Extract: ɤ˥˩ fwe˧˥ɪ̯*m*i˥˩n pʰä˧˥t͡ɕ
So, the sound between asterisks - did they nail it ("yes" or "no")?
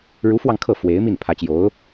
yes